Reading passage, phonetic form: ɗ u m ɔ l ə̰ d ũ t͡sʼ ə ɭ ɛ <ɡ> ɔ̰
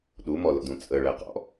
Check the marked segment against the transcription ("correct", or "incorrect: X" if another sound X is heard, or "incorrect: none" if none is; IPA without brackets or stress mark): incorrect: q